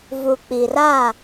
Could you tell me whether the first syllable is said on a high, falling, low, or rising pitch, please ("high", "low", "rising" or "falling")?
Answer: low